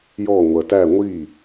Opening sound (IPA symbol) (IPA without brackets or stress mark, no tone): j